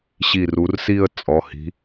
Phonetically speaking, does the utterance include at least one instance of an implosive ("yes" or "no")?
no